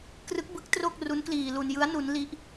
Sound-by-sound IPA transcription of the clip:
krɯ˦˥k̚bɯ˦˥k̚tro˥˩k̚ ru˦˥nkliː˧ lu˧njɯ˦˥a̯ nu˦˥nli˦˥ʔ

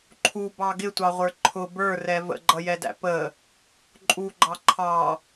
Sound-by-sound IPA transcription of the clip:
ǃʰubɑ ɡɪtʷɑʁʷə˞ ǃʰʊ bə˞rɛ və̰ɡ͡ǃʌjɛdæ̰ pə | ǃʼuɡ͡ǃɑ ǃʰɑ

